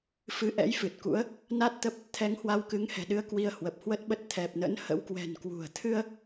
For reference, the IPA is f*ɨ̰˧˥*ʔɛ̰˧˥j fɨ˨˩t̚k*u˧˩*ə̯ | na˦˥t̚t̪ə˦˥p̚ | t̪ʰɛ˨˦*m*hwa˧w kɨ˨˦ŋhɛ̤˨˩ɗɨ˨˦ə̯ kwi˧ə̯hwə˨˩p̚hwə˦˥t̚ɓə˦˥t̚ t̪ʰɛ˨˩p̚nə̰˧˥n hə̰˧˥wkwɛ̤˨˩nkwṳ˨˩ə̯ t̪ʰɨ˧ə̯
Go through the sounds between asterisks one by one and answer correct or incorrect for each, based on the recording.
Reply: incorrect: ɨ˨˦, incorrect: ṵ˧˥, incorrect: ŋ

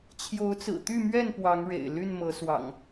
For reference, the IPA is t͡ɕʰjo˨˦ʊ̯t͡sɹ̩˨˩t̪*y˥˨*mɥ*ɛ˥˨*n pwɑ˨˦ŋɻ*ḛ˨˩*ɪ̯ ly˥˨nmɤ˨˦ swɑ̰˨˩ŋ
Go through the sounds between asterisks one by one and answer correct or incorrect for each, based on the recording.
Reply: correct, correct, correct

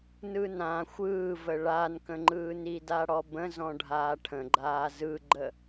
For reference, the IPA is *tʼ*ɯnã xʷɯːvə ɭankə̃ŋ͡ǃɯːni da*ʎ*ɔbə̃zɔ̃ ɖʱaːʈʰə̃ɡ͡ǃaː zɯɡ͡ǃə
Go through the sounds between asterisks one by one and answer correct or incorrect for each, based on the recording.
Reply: incorrect: n, incorrect: ɽ

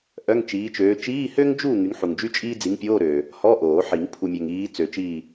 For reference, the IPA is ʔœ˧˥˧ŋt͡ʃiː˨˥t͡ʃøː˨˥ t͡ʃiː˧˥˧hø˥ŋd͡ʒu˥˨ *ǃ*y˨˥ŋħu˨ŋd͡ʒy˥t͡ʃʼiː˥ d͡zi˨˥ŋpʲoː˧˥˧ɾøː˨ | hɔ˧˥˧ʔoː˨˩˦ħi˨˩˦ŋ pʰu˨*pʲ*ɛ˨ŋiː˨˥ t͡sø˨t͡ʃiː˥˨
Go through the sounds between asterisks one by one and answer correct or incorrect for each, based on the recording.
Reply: incorrect: ŋ, incorrect: mʲ

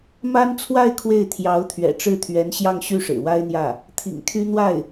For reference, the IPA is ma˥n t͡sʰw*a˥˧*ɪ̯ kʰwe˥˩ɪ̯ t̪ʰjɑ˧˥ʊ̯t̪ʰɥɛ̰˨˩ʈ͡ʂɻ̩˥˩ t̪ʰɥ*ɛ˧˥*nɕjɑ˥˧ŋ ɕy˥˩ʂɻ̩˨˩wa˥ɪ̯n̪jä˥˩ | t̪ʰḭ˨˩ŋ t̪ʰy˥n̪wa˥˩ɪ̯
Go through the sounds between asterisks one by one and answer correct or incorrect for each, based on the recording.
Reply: correct, correct

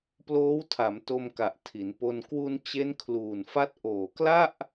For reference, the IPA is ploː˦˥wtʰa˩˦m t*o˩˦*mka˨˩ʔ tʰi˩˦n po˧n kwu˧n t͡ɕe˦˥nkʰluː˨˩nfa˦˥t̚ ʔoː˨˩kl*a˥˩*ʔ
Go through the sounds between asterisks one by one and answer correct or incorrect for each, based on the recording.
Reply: incorrect: o˧, correct

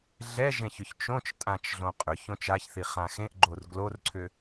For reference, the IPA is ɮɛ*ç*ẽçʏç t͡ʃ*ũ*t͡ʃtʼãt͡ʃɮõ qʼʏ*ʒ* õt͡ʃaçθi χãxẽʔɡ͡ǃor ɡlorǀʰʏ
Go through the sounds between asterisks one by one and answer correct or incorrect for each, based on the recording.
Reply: incorrect: ʒ, incorrect: õ, incorrect: ç

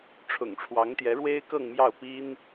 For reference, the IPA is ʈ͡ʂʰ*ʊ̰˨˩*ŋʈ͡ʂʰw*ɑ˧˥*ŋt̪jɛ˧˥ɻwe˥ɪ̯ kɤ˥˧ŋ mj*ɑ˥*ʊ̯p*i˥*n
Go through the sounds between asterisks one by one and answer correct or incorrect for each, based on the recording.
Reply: correct, correct, incorrect: ɑ˥˩, correct

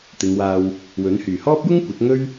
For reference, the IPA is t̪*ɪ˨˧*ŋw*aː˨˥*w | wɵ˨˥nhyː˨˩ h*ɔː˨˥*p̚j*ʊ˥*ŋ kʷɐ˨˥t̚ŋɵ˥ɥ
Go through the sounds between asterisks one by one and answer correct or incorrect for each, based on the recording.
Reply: correct, incorrect: aː˧, incorrect: ɔː˥, correct

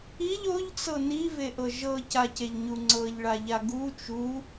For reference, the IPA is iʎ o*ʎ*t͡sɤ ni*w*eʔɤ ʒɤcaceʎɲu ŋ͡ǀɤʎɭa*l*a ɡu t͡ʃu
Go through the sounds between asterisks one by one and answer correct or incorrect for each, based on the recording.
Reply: correct, incorrect: v, incorrect: ʎ

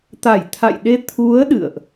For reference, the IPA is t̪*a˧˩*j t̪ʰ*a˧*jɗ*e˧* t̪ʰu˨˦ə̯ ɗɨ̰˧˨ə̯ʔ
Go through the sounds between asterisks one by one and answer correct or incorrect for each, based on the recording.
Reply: correct, incorrect: a̰˧˨, correct

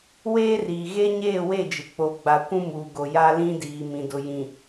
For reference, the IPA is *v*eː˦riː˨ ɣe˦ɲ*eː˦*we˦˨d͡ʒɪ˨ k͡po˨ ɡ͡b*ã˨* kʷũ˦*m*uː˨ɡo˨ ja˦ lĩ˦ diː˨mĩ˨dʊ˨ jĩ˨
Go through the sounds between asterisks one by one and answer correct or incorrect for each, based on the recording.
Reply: incorrect: w, incorrect: eː˦˨, incorrect: a˨, correct

